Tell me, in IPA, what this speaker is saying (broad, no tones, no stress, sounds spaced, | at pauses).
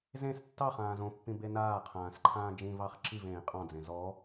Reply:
z ẽ s tː ɑ χ ãː z õ pː ĩ b e n aː qʰ ãː s ǃʰ ãː d͡ʒ ĩ v ɑ χ ǁ i v ẽː qʼ ɑ̃ d͡z ẽ z ɔ